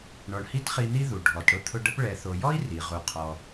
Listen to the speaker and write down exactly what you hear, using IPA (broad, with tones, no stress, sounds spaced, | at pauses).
ɳ ɔ˨ ɳ h i˦ t χ i˦ n̪ i˥ ð u˩ ɖʱ ɔ˩ t ɽ ʊ˥ t̪ʰ ʊ˦ ɖ ə˥ p ɭ ɛ˨ θ o˨ j ɔ˥ i̯ r i˩ ʁ u˩ qʰ ɔ˩